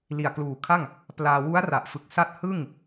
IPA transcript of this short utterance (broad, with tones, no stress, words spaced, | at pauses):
li˨˩a̯kluː˨˩kʰa˥˩ŋ | plaː˧ wu˦˥a̯ra˨˩ʔfɯ˨˩k̚ sa˦˥t̚ hɯ˥˩ŋ